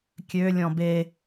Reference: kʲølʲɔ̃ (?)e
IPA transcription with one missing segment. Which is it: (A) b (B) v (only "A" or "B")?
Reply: A